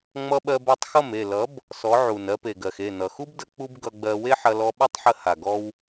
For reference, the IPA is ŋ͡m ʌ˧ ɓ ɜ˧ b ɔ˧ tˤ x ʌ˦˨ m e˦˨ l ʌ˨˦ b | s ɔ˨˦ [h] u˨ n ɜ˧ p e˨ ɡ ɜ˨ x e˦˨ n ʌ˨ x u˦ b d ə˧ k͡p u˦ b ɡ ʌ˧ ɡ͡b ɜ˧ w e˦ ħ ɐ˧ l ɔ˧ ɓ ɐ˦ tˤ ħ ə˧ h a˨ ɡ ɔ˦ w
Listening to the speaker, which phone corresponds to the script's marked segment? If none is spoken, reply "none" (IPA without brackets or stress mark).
ʕ